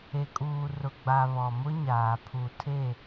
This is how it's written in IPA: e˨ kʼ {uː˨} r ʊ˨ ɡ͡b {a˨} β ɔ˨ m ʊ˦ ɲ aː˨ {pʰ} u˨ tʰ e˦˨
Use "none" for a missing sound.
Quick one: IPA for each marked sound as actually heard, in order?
uː˨, a˨, pʰ

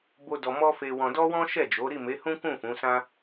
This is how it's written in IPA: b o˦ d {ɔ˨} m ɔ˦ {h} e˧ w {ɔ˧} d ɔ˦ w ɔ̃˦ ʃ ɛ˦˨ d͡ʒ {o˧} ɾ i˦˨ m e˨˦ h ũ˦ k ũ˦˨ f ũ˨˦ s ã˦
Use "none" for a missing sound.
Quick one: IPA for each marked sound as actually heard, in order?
ɔ˧, f, ɔ̃˧, o˨˦

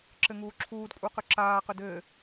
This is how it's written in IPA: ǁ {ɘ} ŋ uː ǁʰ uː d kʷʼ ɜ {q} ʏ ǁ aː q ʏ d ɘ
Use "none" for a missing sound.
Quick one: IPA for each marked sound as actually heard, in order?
ɘ, q

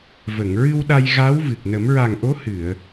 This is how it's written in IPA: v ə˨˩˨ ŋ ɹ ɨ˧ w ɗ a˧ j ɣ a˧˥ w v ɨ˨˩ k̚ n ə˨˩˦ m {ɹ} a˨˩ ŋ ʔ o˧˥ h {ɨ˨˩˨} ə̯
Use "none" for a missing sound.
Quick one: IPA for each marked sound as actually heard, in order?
ɹ, ɨ˨˩˨

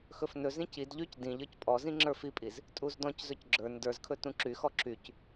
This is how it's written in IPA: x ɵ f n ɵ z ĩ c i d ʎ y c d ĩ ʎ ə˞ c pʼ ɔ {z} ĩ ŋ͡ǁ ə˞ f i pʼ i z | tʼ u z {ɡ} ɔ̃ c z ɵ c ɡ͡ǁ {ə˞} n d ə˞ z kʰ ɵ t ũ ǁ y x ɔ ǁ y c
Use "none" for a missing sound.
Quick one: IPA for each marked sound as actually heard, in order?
z, d, ə˞

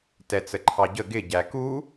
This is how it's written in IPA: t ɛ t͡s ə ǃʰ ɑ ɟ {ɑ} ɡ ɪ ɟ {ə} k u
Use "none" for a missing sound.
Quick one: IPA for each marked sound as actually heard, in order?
ə, æ

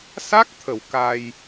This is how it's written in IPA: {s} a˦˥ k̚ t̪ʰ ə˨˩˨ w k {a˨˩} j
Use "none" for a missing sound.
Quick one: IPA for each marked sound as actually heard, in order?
s, a˧

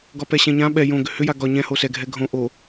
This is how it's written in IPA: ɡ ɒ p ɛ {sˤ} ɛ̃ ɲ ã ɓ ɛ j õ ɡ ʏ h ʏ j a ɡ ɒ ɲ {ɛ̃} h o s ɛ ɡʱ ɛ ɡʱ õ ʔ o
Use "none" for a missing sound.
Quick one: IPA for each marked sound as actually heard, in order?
ɕ, ɛ̃

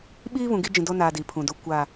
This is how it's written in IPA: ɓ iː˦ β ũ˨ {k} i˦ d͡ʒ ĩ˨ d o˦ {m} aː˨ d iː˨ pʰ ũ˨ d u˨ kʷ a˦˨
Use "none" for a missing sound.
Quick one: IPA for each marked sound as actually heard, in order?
ɡ, n

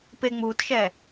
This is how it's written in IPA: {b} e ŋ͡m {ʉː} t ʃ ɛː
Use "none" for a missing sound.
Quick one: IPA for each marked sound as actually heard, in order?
p, uː

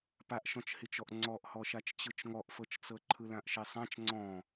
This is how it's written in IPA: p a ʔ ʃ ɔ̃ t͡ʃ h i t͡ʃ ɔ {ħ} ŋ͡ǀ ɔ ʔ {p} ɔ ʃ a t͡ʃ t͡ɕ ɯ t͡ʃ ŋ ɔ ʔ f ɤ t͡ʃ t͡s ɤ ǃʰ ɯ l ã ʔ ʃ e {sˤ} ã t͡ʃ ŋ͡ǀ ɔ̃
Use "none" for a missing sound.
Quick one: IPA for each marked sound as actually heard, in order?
ʔ, h, sˤ

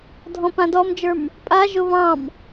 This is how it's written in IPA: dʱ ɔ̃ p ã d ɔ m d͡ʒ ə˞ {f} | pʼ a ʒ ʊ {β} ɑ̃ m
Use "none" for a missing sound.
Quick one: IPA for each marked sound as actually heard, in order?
m, β

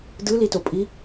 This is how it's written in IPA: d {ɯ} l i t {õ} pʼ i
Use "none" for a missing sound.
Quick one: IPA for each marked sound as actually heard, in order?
ɯ, o

